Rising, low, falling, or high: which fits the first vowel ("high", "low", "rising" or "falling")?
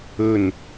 falling